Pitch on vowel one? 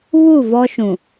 falling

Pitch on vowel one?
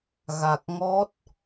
low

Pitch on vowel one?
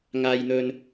low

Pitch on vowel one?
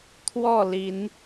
falling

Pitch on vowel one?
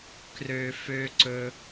low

